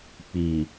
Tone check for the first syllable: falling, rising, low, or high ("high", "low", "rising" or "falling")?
low